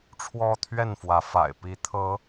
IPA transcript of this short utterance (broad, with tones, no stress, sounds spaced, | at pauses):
ʈ͡ʂʰ w ɔ˦ t̪ʰ ɥ ɛ˥˨ n f w ä˨˦ f a̰˨˩ ɪ̯ p i˨˦ t̪ʰ ɤ˨˦